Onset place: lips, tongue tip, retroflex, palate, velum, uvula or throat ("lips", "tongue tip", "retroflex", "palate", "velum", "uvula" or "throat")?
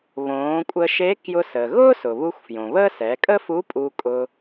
lips